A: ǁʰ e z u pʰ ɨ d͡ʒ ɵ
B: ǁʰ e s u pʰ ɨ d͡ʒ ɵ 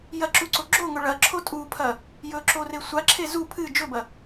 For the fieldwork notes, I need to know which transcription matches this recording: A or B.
A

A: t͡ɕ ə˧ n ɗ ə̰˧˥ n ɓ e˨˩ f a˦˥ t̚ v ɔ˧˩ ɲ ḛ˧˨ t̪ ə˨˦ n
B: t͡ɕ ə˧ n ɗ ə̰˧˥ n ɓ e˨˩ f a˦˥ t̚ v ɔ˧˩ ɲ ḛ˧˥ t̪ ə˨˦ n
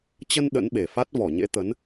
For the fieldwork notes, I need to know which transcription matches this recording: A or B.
B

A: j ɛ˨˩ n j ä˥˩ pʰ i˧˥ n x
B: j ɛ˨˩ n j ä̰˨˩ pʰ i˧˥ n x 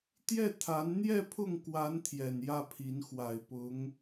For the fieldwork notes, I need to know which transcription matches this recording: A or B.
A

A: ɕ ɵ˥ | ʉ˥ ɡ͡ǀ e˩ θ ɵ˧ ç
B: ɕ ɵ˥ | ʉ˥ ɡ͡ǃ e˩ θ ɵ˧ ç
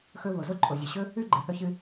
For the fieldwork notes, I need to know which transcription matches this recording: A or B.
B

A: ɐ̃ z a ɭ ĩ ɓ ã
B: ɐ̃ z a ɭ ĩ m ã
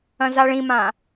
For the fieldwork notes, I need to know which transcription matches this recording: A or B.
B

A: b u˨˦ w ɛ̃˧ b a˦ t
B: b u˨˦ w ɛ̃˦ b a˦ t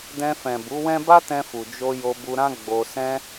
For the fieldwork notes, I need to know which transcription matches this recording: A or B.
B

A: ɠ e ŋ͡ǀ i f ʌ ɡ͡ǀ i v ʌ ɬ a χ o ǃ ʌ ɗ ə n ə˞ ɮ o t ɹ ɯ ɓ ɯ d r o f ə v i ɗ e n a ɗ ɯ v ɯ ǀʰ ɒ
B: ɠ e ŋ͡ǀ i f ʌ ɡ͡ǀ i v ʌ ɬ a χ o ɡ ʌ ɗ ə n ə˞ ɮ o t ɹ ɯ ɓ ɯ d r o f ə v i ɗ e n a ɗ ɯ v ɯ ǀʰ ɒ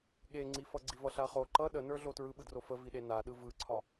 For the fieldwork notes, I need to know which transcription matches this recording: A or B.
A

